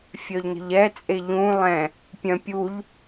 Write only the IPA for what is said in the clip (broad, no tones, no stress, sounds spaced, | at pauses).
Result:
fʲ œ ʎ n ə̤ ʎ ɛ t͡sʼ e ʎ ũ lˠ ɛ̃ | pʲ œ̃ pʲ u ʎ